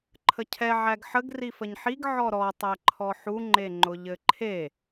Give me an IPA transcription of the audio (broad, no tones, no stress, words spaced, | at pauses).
ǃʰəcʰɛ ʕæɡħəɡ rifəɲħiɡ ʕɔɾɔ tˤæǃʰɔħu ŋ͡ǃeŋ͡ǃʊʎɘǃʰe